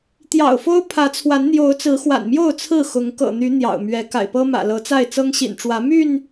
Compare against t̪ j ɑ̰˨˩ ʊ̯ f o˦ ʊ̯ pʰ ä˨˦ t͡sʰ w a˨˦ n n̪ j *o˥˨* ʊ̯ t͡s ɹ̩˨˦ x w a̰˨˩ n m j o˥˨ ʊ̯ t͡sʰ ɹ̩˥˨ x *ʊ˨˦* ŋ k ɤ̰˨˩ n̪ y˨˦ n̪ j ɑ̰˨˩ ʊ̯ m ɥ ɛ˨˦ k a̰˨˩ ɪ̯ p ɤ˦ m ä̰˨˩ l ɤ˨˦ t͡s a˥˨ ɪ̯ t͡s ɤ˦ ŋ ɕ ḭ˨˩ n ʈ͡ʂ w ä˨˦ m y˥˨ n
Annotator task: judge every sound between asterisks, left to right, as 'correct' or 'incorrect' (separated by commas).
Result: incorrect, correct